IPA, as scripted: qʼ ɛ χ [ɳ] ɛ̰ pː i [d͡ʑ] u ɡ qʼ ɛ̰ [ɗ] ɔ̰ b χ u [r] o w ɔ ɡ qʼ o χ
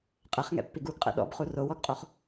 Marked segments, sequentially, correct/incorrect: incorrect, incorrect, correct, correct

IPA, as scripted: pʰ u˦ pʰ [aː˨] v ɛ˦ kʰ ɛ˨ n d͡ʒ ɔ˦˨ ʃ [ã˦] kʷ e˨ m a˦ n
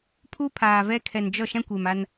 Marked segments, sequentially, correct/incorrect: correct, correct

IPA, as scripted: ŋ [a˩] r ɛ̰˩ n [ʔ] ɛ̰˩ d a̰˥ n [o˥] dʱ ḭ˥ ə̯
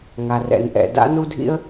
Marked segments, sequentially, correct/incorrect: correct, correct, incorrect

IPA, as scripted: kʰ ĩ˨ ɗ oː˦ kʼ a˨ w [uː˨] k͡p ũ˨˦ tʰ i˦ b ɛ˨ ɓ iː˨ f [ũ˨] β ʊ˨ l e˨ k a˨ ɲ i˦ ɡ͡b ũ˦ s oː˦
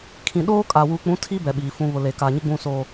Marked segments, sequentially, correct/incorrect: correct, correct

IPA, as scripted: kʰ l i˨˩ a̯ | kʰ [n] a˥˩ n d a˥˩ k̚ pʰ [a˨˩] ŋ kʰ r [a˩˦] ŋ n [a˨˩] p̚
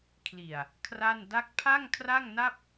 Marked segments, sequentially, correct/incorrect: incorrect, incorrect, incorrect, incorrect

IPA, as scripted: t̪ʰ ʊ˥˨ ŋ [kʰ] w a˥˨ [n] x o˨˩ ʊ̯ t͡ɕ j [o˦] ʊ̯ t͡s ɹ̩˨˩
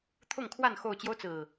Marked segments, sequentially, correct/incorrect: correct, correct, correct

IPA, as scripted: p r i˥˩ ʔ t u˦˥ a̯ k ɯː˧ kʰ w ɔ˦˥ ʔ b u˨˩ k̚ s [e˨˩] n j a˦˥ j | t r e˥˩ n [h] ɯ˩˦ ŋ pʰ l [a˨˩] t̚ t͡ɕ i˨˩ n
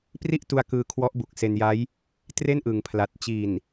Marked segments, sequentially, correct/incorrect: incorrect, incorrect, correct

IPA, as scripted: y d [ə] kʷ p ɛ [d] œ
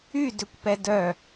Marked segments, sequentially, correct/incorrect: incorrect, correct

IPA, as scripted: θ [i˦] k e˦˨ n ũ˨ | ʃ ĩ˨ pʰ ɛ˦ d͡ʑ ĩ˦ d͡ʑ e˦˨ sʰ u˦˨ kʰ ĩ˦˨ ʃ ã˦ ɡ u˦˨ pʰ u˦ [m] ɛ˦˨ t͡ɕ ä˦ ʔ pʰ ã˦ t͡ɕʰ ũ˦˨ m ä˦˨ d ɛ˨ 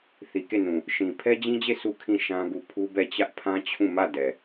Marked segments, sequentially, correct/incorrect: incorrect, incorrect

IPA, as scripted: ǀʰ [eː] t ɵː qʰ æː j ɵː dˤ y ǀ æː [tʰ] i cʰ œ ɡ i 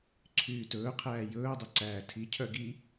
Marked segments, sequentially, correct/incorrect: incorrect, correct

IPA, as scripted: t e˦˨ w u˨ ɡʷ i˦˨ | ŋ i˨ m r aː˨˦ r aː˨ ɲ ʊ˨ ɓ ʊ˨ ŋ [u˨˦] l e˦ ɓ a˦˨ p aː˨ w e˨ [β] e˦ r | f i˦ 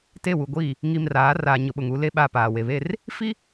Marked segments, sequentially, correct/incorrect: correct, correct

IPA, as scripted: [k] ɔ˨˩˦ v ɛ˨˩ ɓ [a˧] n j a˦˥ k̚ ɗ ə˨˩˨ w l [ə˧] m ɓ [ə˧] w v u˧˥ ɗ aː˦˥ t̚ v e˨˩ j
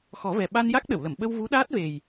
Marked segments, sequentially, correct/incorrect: incorrect, correct, incorrect, correct

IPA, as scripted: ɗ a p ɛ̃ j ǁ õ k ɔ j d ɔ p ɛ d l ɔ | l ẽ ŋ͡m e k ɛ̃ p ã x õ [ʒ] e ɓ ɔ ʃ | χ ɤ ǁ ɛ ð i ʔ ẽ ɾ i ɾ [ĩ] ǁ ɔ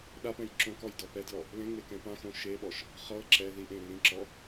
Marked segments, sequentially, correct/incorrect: incorrect, correct

